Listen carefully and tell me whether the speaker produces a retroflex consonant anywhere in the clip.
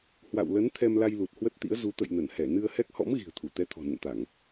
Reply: no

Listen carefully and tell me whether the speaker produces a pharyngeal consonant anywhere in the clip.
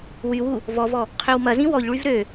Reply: no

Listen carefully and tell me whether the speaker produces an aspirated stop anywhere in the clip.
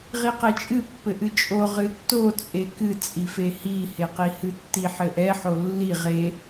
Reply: no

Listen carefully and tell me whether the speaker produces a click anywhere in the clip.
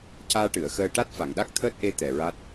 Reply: no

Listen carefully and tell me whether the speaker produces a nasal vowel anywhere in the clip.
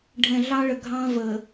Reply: yes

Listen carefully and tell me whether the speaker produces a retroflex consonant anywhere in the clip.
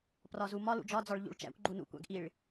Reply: yes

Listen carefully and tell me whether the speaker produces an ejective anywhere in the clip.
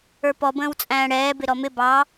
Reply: yes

